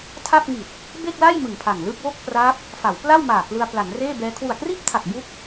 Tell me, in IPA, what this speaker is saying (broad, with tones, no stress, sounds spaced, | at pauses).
tʰ a˥˩ p̚ ŋ i˨˩ t̚ | b e˥˩ k̚ l a˥˩ j m ɯ˨˩ ŋ pʰ a˨˩ ŋ l ɯ˥˩ k̚ w o˥˩ k̚ p r a˦˥ p̚ | f a˩˦ w p l a˥˩ w m aː˨˩ k l ɯ˧ a̯ p l a˩˦ n r eː˥˩ b ɛː˦˥ kʰ w u˨˩ a̯ k r iː˥˩ p̚ tʰ a˨˩ k̚ b u˦˥ k̚